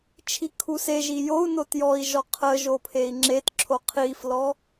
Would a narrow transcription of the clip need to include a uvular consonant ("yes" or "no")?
yes